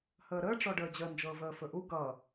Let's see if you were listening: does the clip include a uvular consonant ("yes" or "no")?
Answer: no